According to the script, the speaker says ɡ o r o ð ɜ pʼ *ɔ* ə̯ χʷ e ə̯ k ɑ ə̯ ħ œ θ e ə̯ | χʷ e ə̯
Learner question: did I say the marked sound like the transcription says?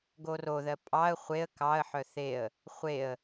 no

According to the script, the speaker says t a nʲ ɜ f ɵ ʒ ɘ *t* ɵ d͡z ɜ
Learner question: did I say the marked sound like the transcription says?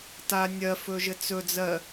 no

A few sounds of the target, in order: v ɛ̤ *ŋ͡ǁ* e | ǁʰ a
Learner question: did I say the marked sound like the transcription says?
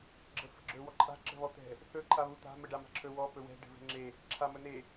yes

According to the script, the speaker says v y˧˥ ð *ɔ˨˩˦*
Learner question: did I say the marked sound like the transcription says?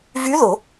no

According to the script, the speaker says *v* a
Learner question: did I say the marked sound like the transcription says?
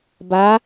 no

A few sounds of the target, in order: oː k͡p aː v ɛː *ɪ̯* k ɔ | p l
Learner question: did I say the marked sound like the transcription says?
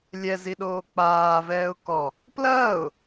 no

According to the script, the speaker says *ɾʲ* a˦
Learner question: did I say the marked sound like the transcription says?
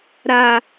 no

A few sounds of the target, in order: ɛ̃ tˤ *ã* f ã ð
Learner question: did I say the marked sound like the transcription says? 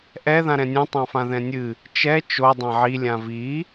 yes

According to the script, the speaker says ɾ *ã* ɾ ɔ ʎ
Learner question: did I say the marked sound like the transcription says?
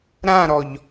yes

